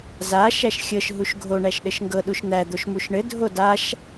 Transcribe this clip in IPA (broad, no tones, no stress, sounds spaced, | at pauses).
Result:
z a ʃ æ ʃ xʲ ɤ ʃ ɦ u ʃ ɡʱ o ɳ æ ʃ ɗ ɘ ʃ ŋ ɡ ɤ ɗ u ʃ n̪ æ d̪ o ʃ m u ʃ ɳ ɘ dʱ o d a ʃ